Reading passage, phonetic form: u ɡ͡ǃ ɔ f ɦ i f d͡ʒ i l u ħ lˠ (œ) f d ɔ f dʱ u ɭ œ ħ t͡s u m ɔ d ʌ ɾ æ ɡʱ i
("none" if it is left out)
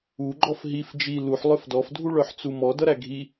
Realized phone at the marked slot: œ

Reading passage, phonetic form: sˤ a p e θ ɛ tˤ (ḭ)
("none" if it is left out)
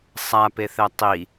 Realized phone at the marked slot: i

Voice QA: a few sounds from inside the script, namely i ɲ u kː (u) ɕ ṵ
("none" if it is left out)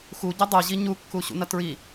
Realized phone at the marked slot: u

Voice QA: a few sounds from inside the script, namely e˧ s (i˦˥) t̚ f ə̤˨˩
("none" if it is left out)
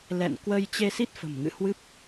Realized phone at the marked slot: i˦˥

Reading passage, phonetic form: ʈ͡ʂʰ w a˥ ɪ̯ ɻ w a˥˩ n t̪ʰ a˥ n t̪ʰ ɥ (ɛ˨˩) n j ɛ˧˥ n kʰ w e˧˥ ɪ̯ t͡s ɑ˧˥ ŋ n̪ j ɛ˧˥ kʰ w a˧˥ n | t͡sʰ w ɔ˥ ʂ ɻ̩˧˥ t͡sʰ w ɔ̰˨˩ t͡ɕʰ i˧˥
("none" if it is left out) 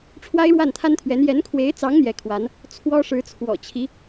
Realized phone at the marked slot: ɛ˧˥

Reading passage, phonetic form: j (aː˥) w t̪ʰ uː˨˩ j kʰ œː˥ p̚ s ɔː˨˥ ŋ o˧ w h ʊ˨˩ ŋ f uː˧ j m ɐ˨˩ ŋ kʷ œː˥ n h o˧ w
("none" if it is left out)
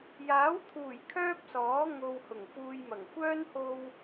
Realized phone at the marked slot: aː˨˥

